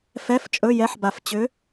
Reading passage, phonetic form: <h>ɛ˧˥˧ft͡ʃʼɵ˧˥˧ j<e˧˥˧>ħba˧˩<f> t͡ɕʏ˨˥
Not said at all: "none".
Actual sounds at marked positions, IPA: f, ɛ˧˥˧, f

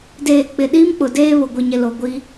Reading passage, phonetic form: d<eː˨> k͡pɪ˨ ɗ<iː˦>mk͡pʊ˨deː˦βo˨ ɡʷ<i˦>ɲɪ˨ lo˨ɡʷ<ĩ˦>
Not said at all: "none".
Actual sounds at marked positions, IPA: eː˨, iː˦, i˨, i˦

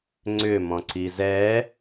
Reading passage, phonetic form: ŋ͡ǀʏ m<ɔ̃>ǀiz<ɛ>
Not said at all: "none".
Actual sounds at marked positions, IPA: ɔ̃, ɛ

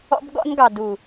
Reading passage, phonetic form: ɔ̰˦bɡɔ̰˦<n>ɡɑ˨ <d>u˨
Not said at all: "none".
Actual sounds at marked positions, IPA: n, d

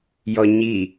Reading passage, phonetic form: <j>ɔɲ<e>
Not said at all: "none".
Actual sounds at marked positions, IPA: j, i

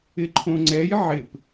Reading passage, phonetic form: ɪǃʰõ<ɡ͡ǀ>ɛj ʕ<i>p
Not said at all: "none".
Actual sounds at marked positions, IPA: ŋ͡ǀ, ɪ

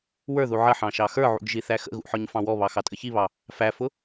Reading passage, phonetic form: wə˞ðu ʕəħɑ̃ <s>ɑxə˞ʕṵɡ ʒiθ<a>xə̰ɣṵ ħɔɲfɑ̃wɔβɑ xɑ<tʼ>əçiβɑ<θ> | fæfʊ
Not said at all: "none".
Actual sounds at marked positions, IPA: ʃ, æ, tʼ, none

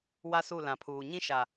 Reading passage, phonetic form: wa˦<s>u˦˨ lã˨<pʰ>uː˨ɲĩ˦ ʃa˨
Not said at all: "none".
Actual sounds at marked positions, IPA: s, pʰ

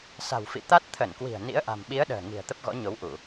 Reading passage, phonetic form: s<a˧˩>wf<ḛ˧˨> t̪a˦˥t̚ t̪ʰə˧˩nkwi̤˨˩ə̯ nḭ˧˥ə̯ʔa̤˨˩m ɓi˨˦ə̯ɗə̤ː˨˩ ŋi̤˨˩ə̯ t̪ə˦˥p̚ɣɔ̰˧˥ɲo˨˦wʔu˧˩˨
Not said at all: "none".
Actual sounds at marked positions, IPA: a̤˨˩, ḭ˧˨

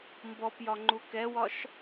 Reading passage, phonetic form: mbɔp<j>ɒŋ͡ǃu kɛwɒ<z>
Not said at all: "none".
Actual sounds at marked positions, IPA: j, ʃ

